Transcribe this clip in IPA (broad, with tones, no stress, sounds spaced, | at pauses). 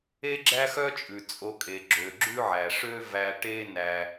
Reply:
e˥ ɡ͡ǁ æ˥ x œ˥ t͡ʃʼ ʉ˩ t͡sʼ o˧ kʼ e˩ ɡ͡ǁ ø˩ ɡ͡ǁ ʉ˥ ʕ æ˩ ʂ ø˥ v æ˧ ʈ e˥ n æ˧